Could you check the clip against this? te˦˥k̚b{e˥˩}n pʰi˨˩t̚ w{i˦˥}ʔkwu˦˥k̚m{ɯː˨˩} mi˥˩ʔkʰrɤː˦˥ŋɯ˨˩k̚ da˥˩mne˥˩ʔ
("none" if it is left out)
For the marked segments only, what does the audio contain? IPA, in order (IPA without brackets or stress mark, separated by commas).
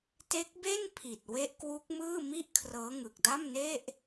e˥˩, e˦˥, ɯː˥˩